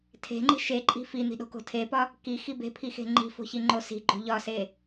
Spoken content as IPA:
tʰ e̤ ŋ͡ǃ i̤ ʃ e ǃʼ i̤ f i n̪ i̤ ɗ o̤ k o̤ tʰ e p ɒ | k i x i b e̤ pʰ i x e̤ ŋ͡ǃ i̤ f o̤ ç i ŋ͡ǃ o s i̤ ɡ͡ǃ o̤ ʎ ɒ s e

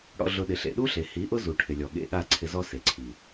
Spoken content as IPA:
ɽ ɔ̰˧ ɮ ʊ˧ ɗ ɪ˨ ɬ ḛ˨ ɗ u˦ ɬ e˨ h i˨˦ ʔ ʊ˦ z u˨ ʈʰ ɪ˨ lʲ ɔ˨ ɠ ḛ˧ ɠ a˦˨ ǀʰ ɪ˧ z ɔ˦ s e˨ ǀʰ i˨

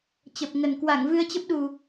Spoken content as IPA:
t͡ɕ ə˨˩ p̚ ŋ ə˨˩ n k w a˧˩ ŋ v ɨ˧ ə̯ t͡ɕ ə˦˥ p̚ ɗ u˨˩

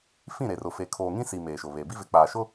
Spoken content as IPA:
f ĩ˦˨ ɾ e˨ r ʊ˨ f e˨ kʰ oː˨ ŋ ĩ˦ s i˨ m eː˨ ʃ ʊ˨ β e˨ b i˦ v ɪ˨ k͡p aː˨ ʃ ʊ˦

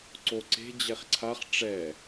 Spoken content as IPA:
ǀ o ǀ e̤ d͡ʑ ɛ χ ǀʰ a χ ʈ͡ʂ ɛ

